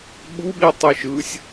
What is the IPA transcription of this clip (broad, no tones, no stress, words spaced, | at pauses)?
ɓuɓi tˤɯʃɯsʲ